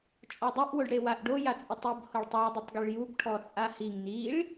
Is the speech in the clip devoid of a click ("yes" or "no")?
yes